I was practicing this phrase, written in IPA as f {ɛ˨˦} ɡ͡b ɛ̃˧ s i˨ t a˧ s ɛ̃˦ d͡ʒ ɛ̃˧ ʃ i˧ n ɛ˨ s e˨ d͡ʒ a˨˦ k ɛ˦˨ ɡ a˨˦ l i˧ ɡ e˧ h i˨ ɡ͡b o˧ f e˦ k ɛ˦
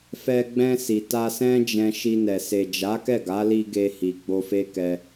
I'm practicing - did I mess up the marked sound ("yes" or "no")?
yes